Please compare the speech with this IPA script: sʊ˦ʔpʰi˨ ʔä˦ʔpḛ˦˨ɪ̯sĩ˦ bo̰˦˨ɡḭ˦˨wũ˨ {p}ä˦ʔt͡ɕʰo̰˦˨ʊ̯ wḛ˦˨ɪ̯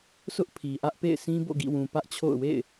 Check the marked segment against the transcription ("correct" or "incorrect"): correct